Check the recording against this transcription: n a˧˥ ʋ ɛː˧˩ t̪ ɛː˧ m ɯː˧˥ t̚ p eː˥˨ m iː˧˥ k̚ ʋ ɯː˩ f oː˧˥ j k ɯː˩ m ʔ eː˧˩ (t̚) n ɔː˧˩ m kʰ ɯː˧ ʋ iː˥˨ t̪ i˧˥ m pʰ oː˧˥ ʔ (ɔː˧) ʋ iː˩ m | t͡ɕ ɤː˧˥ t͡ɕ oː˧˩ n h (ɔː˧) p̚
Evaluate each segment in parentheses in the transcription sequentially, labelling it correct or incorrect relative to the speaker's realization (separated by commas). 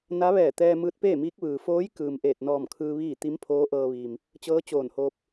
correct, incorrect, incorrect